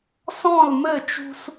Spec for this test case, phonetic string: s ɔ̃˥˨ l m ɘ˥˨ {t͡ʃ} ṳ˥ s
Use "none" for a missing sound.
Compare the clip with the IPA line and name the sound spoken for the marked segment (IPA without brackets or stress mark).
t͡ʃ